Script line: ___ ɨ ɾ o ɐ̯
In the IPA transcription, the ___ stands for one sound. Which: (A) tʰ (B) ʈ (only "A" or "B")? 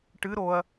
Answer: B